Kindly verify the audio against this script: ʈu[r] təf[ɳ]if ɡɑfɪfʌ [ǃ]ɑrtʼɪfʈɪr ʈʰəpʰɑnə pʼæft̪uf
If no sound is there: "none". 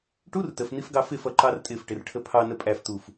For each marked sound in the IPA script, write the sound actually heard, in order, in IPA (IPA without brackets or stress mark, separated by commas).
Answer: r, n̪, ǃ